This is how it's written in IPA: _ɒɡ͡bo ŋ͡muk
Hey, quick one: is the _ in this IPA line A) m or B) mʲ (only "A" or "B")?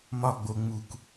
A